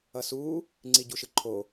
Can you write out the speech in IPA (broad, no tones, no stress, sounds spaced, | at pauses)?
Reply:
ʌ s u | ŋ͡ǀ i ɟ u ʃ ɯ ǃʰ o